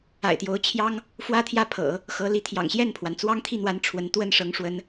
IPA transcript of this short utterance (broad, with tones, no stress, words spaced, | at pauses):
a̰˨˩ɪ̯t̪jo˧˥ʊ̯t͡ɕʰjɑ˥ŋ | fwä˥t̪ʰjä˥˩pʰɤ̰˨˩˦ | xɤ˧˥ li˧˥t̪ʰjɑ̰˨˩ŋɕjɛ˥˩npʰwa˩n t͡swɑ˥ŋt̪ʰi˥˩n̪wa˧˥n ʈ͡ʂʰwə˧˥n t̪wə˥˩nʂɤ˧˥ŋ ʂwə˧˥n